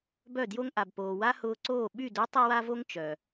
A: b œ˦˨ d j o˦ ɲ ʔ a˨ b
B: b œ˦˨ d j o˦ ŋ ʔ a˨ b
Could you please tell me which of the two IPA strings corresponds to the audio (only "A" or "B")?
B